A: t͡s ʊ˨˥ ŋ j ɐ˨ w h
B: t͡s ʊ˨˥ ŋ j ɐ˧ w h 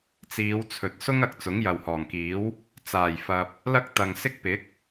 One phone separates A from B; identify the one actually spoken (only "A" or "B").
A